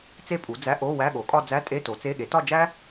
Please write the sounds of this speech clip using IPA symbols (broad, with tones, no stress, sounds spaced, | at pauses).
t͡s e˥ pʼ u˩˥ d͡z æ˧˥˧ ʔ o˧˥˧ w æ˧˥˧ ɠ o˩˥ kʼ ɒ˥˧ d͡z æ˧˥˧ tʼ e˧˥˧ t o˩˥ t͡s e˧˥˧ ɠ e˩˥ t ɒ˥˧ d͡ʒ æ˥